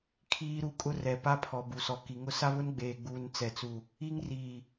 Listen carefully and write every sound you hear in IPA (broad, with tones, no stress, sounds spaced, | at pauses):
kʰ iː˦ ɾ u˦ kʼ ʊ˦ r ɛ˨ p a˦ pʰ ɔ˨ b u˨ s ɔ˨ k i˨ ŋ ʊ˦ s a˦ β ʊ˦ n ɡ͡b eː˨ ɡ͡b uː˨ n t͡s ɛ˨ t͡s u˨ | i˦ ŋ r iː˨